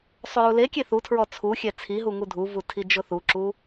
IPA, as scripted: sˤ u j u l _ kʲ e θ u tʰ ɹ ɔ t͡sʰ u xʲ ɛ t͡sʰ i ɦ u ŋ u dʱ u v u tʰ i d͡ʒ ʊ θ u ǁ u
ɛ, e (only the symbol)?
e